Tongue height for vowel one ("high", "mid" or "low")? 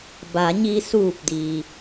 low